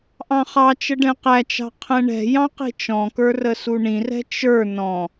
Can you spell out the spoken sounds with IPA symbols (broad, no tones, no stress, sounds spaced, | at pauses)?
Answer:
ʔ ɑ̃ χ ɑ t͡ʃ ə ɖ ɛ̃ q æ t͡ʃ ɑ̤ qʰ ɛ̃ ɳ ɛ̤ j ɑ̃ q i̤ t͡ʃ ɔ̃ k ə˞ r ə s u ɳ ĩ r ɛ̤ t͡ʃ ə˞ n ɔ̃